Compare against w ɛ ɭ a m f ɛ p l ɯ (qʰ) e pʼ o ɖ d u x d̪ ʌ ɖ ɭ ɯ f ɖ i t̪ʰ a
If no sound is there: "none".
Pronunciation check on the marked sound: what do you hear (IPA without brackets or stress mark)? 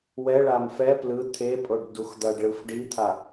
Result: t̪ʰ